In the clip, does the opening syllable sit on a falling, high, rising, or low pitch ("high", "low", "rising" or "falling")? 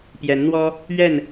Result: rising